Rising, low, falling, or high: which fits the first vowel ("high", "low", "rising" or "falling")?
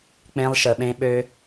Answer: high